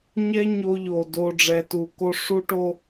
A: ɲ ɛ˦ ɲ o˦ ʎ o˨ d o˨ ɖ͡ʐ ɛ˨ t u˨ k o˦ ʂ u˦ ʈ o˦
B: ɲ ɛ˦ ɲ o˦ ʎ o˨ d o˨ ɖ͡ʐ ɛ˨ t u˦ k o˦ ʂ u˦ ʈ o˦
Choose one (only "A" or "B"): A